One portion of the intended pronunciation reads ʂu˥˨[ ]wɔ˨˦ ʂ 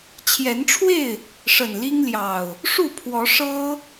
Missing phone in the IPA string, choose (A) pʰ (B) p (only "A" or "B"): A